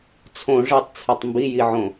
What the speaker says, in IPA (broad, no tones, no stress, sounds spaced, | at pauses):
t͡sʰ õ ʐ e tˤ t͡sʰ e tˤ m b i j i ʕ õ